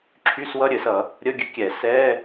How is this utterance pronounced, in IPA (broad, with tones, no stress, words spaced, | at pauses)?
ǁʰy˧˥˧swʌ˧˥˧ɾʲɘ˨˩˦sʌ˨˩˦ | ɾʲə˧˥˧ɡʲɘ˧˥kʲɛ˨˩˦ sɛ˧˥˧